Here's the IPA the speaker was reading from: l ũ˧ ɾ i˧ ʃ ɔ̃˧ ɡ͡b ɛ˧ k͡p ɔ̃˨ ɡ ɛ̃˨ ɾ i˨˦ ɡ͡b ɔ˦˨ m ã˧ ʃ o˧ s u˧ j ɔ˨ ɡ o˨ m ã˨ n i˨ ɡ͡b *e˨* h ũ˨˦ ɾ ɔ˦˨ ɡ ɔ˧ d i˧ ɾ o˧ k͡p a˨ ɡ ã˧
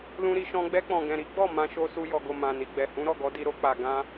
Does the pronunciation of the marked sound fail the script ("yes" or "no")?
yes